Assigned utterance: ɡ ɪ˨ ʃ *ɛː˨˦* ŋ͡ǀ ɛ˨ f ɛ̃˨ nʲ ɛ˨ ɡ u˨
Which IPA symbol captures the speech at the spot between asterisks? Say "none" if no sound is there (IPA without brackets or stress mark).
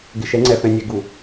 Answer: ɛ˨˦